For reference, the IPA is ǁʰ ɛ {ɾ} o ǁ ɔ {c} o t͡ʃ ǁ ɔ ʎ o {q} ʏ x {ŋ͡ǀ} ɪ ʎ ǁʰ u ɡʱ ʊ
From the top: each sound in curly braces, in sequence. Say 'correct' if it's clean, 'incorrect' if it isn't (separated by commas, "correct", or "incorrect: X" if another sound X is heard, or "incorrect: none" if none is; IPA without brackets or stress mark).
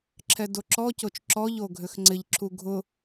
incorrect: d, correct, incorrect: ɡʱ, correct